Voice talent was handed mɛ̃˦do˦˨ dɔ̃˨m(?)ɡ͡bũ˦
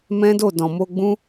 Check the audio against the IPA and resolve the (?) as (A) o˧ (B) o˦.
A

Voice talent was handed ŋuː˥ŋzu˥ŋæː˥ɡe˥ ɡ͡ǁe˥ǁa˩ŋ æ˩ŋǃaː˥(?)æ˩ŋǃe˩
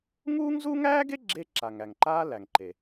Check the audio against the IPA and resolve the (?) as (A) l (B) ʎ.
A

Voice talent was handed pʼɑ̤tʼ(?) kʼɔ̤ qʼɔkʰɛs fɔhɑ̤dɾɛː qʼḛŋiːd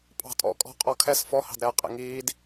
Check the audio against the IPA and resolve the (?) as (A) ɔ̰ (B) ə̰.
A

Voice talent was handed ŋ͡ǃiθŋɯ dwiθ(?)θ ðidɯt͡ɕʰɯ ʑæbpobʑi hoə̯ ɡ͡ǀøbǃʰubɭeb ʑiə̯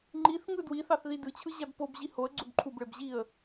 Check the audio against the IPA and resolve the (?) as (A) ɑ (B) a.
A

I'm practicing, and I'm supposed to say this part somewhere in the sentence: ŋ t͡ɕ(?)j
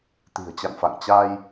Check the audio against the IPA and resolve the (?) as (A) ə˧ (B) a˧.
B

